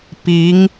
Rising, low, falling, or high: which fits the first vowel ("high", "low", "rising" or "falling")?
rising